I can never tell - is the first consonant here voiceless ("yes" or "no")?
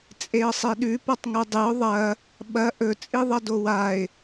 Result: yes